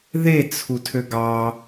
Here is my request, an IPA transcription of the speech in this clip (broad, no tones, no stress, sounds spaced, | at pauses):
ð e t͡sʰ u tʰ ø ɡ ɑ